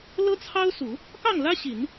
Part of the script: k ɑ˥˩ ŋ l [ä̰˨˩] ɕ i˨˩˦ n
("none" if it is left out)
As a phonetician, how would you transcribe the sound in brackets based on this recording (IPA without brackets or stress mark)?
ä˥